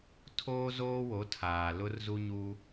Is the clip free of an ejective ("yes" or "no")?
yes